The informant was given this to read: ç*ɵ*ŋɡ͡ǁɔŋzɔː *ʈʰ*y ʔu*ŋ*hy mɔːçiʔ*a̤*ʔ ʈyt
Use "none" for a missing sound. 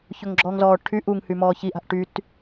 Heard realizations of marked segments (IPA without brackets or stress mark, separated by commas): ɵ, ʈʰ, ŋ, a̤